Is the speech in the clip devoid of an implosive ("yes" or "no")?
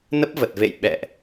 no